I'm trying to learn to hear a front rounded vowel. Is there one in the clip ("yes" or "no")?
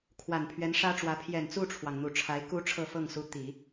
no